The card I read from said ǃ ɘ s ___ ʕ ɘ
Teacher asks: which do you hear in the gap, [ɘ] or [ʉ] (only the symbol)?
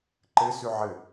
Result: ʉ